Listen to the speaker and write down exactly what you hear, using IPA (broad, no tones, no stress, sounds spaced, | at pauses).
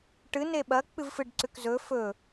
ʈ ɨ n e ɓ ɐ k͡p ɨ v f ɨ ɖ ǀ ʉ k z ɵ f ɵ